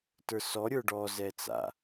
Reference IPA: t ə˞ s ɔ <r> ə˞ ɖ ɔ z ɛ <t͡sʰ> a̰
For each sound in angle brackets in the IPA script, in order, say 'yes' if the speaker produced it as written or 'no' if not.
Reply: no, no

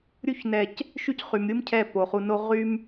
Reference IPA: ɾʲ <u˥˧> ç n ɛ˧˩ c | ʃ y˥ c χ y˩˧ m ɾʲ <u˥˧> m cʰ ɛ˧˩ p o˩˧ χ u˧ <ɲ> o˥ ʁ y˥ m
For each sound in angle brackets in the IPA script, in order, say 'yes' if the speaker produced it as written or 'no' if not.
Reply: yes, no, no

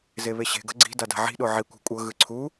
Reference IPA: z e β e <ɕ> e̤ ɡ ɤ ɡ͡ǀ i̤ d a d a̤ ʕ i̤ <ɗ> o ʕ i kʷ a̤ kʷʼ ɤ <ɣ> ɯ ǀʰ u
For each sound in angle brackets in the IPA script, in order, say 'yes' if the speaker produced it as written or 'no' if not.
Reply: yes, yes, yes

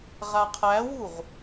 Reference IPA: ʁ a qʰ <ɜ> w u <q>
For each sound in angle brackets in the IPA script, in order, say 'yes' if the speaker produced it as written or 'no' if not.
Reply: no, no

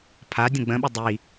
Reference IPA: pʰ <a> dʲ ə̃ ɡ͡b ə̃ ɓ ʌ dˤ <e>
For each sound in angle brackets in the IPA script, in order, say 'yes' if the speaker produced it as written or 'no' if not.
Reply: yes, no

